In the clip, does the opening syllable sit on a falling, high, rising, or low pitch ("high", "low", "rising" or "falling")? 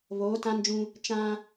rising